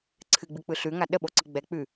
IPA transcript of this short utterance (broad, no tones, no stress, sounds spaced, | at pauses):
ǀʰ ɨ ɡ͡b ɨ k͡p ɯ ɬ ʉ ŋ a ɗ ə ɓ o ǀ ɯ ɡ͡b ɛ k͡p ʉ